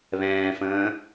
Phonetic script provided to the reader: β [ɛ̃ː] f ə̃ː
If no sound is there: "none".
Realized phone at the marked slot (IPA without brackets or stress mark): ɛ̃ː